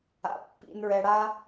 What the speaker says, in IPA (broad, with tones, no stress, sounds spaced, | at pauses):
a̰˨ pː ḭ˧ n ɹ ɛ˧ ɽ a˦